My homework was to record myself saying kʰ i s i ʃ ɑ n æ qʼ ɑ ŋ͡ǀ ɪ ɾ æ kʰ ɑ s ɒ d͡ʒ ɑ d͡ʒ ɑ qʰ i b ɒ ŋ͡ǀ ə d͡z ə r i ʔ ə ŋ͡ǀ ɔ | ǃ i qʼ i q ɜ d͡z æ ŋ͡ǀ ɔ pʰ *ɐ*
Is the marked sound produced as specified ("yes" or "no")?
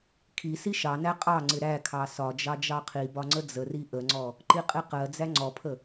no